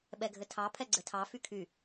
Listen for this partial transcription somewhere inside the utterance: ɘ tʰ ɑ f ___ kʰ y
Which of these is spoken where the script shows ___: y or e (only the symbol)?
y